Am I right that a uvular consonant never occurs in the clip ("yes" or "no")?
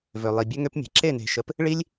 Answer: yes